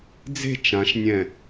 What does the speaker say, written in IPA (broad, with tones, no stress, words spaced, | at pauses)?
d͡ze̤˥˧ t͡ʃã˨˦ʃnʲɛ̃˧˩